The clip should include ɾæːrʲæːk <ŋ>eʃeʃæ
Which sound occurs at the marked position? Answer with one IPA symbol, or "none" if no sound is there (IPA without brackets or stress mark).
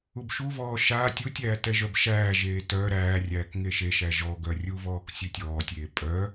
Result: ŋ